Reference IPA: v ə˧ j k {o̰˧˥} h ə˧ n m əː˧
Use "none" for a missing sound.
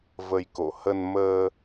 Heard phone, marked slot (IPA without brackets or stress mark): o̰˧˨